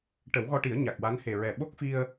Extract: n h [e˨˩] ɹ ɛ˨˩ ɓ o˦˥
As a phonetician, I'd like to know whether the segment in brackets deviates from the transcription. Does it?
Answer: no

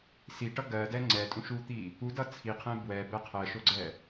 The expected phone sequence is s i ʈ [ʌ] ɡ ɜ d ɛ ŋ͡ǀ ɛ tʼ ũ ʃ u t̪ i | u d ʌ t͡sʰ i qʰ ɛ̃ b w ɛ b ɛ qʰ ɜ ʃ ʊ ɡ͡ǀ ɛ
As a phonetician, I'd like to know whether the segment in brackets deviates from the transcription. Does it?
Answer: no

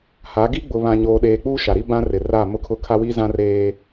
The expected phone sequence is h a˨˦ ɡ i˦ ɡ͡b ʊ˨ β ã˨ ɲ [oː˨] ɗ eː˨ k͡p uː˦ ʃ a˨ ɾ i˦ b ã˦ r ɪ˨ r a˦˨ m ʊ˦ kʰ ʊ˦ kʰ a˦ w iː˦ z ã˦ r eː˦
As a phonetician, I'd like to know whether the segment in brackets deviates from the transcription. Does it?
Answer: no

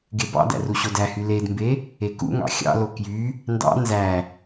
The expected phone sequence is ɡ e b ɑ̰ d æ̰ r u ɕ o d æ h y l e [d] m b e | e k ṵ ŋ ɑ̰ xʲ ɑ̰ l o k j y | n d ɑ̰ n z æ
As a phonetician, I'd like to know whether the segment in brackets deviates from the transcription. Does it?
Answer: no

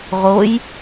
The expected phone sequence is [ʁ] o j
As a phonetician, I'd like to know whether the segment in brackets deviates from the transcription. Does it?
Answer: no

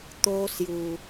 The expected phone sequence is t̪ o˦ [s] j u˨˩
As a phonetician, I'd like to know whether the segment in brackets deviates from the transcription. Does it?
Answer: no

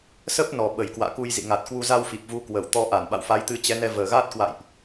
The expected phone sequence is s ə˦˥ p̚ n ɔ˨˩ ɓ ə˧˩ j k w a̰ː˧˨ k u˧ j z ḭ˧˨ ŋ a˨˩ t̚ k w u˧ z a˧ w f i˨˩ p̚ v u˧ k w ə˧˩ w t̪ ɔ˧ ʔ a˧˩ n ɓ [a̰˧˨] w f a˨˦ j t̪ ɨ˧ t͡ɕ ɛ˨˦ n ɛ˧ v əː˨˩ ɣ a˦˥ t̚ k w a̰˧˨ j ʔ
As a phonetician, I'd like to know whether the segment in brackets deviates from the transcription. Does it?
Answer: no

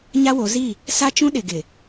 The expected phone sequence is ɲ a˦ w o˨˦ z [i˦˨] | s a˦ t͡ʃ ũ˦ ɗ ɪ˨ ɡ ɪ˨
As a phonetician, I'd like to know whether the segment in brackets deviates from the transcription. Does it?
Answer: no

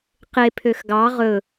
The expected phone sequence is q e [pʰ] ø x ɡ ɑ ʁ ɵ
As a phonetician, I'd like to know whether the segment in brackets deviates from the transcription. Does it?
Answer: no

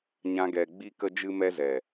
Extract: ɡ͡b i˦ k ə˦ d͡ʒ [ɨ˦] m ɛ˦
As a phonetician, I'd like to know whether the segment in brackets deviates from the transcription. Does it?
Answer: no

